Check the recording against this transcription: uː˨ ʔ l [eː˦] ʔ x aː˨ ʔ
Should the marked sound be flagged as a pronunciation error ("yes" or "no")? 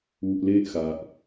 no